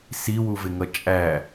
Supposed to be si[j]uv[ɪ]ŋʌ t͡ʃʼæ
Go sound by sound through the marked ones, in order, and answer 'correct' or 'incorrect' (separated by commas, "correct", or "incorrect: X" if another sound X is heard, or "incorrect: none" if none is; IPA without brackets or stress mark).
incorrect: w, correct